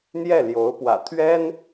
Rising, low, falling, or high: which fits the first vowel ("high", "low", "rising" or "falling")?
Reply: falling